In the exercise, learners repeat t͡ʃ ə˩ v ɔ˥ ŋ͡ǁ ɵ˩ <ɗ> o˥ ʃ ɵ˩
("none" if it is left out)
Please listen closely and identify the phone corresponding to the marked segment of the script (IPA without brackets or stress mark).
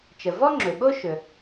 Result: ɓ